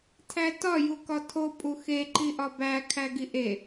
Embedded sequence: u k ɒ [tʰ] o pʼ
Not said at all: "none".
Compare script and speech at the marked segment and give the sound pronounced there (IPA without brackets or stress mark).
tʰ